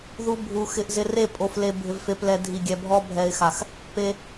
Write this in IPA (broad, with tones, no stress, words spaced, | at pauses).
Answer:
ðu˦bʱu˧ xɪ˧ʔzɪ˧re˦˨ pʼo˧fle˧ bʱɪ˨vfe˨plɛ˨ dʱi˨ɡʲɛ˨ bʱɔ˧bʱɛ˨ɪ̯xa˨x | pe˧